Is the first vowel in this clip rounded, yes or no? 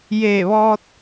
no